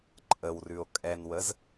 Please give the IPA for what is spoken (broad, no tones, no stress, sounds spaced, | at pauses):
ǃʼ ə w r ʉ o̯ kʼ ɛ n w ə z